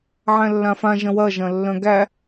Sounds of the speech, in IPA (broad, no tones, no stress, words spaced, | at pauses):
ʕæ̃lːãfã ʒɐ̃wɐ ʒɐ̃lːœ̃ɡæ